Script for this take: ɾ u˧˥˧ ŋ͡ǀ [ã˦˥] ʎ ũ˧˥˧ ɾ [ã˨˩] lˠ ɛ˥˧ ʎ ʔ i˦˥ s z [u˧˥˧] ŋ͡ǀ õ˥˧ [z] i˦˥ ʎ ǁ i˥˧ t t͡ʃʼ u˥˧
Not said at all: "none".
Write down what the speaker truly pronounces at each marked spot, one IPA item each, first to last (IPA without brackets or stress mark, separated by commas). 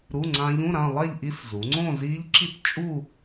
ã˦˥, ã˥˧, u˩˧, z